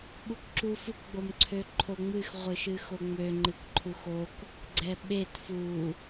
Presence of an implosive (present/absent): present